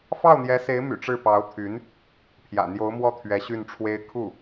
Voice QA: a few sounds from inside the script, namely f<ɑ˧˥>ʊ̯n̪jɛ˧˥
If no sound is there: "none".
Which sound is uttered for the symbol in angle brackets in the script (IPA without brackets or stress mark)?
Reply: ɑ˥˩